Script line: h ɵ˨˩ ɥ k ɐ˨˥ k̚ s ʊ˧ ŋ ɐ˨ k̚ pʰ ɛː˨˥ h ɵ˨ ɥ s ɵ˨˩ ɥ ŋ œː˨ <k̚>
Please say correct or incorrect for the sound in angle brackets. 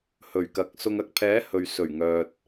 incorrect: t̚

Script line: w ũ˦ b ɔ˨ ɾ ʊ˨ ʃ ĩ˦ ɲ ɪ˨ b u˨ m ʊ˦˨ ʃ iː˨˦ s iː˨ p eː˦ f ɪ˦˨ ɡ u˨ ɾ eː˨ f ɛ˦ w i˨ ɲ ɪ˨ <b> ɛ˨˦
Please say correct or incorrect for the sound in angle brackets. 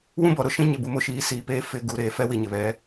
incorrect: β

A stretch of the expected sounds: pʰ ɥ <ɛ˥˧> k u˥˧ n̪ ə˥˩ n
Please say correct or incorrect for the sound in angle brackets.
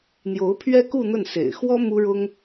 incorrect: ɛ˥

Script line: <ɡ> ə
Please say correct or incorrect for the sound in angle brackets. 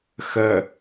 incorrect: x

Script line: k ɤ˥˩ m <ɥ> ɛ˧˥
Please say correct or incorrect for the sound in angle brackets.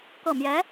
incorrect: j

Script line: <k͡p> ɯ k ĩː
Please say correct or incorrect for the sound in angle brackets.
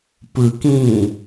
incorrect: p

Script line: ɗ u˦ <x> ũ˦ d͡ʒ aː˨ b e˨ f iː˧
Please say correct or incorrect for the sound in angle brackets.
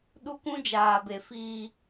incorrect: k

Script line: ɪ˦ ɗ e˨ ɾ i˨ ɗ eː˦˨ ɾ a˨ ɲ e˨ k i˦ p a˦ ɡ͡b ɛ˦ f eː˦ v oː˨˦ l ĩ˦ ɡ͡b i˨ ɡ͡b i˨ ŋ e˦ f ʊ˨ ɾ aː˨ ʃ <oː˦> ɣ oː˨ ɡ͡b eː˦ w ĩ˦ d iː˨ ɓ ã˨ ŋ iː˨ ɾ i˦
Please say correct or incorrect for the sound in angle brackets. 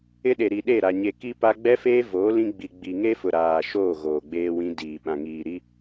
incorrect: oː˦˨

